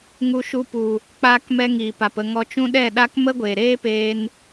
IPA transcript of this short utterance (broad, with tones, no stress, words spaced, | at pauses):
ŋu˧ʃu˧pu˨ | k͡paː˧kmɛ˧ ŋiː˨pa˨pə˦˨ ŋɔ˧t͡ʃũ˦ ɗɛ˦˨ɗa˦k mə˦ɡʷeː˨ɾeː˦ peː˧n